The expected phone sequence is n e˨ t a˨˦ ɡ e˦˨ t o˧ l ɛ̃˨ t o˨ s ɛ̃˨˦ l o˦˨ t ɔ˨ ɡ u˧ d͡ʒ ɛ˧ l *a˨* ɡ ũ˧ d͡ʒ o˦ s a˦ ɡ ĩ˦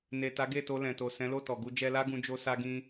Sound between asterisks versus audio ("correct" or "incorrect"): incorrect